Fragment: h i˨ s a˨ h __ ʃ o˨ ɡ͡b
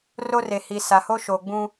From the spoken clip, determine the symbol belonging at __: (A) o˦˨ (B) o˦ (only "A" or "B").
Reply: B